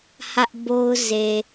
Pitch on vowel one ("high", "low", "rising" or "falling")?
high